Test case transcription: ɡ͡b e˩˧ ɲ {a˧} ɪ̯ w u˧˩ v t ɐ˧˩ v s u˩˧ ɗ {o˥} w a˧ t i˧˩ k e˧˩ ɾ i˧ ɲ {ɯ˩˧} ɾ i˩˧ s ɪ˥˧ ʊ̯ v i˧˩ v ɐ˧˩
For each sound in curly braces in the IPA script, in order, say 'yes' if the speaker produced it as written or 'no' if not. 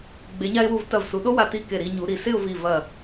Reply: yes, yes, no

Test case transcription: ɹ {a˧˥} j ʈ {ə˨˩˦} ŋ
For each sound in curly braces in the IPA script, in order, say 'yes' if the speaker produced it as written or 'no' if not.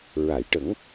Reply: no, yes

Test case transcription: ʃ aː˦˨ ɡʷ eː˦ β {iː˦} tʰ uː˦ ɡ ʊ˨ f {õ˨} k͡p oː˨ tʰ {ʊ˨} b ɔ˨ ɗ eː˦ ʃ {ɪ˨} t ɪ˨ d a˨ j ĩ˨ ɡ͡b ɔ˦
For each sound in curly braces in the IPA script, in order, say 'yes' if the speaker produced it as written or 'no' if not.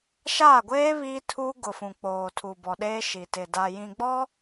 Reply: yes, no, no, no

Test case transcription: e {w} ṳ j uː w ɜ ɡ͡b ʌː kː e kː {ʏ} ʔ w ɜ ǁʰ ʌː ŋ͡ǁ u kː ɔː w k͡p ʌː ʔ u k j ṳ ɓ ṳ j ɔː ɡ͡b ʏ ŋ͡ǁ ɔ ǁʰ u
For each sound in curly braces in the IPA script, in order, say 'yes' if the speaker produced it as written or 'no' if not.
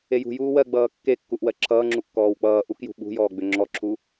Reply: no, no

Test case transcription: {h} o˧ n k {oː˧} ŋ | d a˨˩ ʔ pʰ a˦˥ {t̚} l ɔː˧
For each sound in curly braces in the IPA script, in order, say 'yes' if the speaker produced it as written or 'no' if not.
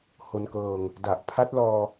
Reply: yes, no, yes

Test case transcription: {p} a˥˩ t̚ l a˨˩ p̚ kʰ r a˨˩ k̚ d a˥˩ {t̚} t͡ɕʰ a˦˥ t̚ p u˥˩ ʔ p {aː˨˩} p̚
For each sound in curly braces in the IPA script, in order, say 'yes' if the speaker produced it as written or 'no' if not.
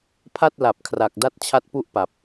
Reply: no, yes, no

